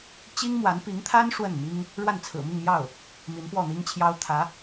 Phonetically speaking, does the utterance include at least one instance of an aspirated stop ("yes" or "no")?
yes